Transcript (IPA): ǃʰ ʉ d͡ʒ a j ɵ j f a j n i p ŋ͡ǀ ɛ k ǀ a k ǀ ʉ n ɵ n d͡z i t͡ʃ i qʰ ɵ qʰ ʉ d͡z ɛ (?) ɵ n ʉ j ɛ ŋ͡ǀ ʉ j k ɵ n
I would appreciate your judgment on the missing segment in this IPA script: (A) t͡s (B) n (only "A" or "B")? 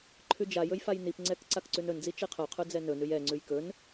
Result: B